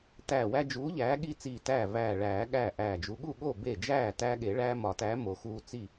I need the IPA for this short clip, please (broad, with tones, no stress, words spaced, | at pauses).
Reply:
tæː˧˩wæ˦d͡ʒuː˨˥ ʎæː˨˥ ɠi˦t͡siː˧˩ tæː˥˩væː˧˩ɭæː˨˩˦ ɠæː˥˩ʔæː˧˩d͡ʒu˨˥ ɠu˥˩ɠo˥˩ be˥˩ d͡ʒæː˥˩tæ˦ɠe˨˩˦ ɭæː˦mɒ˨˩˦tæː˨˥ mo˨˩˦xuː˦t͡si˥˩